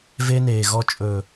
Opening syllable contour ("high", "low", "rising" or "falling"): high